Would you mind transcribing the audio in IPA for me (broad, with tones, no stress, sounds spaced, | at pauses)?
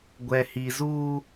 ɡʷ ɛ˨ h i˨ z uː˦